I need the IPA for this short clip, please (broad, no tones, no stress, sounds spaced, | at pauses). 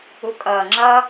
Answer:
u kʼ ʌː ŋ͡ǁ ʌ